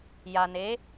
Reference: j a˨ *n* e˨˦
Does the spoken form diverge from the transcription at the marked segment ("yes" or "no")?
no